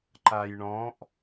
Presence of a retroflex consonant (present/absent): present